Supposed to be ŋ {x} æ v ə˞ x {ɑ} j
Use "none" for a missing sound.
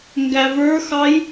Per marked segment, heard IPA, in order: ɡ, ɑ

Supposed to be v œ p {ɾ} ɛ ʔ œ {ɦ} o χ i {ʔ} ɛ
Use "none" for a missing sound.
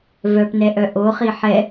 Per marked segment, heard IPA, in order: n, ʔ, ħ

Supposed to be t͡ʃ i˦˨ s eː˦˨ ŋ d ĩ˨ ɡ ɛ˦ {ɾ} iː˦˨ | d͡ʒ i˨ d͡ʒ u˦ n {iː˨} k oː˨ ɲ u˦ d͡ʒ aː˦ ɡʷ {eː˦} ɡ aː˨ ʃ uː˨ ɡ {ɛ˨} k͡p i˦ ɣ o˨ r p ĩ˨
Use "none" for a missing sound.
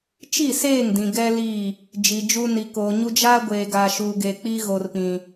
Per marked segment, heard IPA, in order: l, i˨, eː˨, e˨

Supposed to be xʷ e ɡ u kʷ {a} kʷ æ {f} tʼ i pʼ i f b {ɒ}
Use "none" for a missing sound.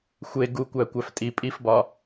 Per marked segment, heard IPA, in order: æ, f, ɒ

